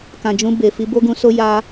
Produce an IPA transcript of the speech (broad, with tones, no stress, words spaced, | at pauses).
kã˨ d͡ʒũ˧be˨fi˧ bo˦ɡũ˧so˦ ja˦